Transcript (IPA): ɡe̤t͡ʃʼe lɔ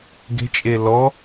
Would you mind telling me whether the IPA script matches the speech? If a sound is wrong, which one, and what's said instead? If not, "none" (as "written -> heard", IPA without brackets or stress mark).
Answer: none